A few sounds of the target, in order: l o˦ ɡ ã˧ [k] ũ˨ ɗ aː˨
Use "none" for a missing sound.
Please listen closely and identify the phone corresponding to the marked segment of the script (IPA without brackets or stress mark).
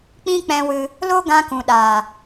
k